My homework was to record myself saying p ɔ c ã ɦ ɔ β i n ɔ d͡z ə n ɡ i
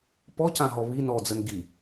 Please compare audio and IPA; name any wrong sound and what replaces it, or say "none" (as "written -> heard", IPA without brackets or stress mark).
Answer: none